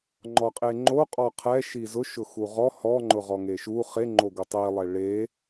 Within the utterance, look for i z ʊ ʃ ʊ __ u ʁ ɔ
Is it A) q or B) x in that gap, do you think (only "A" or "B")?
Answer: B